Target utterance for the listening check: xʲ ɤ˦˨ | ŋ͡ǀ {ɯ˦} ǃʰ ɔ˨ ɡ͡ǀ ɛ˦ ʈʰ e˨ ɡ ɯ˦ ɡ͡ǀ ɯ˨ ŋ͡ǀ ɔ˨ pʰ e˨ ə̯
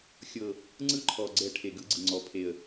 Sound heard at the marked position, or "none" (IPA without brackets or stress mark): ɯ˦